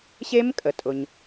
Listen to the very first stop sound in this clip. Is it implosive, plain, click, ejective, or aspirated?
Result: ejective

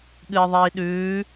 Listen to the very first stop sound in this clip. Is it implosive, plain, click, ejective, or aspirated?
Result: implosive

